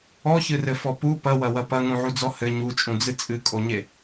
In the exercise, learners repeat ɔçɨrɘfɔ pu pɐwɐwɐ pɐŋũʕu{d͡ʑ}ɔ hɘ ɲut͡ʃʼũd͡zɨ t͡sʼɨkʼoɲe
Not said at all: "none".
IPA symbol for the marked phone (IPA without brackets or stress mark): d͡z